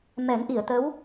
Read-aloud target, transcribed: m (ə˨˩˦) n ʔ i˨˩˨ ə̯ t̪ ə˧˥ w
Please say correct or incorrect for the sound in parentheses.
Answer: incorrect